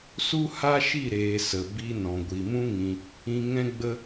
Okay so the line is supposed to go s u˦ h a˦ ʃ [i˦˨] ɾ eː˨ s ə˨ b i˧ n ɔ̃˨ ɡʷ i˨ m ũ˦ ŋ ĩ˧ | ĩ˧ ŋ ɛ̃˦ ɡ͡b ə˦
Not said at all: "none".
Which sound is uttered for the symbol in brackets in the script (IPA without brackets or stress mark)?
i˦˨